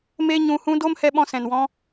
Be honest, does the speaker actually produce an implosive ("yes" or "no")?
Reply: yes